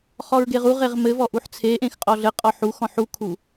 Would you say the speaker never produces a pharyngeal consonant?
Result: no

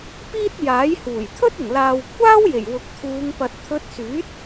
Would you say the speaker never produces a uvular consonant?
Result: yes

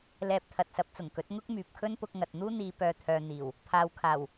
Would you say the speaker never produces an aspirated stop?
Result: no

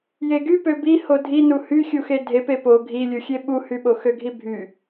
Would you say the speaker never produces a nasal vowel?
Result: yes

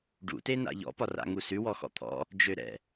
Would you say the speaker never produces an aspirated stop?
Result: no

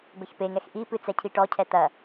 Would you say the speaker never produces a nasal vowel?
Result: yes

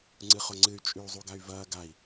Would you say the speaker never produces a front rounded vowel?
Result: no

